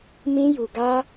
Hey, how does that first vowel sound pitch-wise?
high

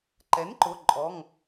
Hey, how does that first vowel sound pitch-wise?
rising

